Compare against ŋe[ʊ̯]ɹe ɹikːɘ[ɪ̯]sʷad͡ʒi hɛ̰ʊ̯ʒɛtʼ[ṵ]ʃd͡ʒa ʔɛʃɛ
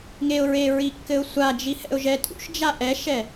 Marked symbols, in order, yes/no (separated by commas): yes, no, yes